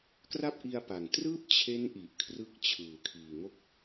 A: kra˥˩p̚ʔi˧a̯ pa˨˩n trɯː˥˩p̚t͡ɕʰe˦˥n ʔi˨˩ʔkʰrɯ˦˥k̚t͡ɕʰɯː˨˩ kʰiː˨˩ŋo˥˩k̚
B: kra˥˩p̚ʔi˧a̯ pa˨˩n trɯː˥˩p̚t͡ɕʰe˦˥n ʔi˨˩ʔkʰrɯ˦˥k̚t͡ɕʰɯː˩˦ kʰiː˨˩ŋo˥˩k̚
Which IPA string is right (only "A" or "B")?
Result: A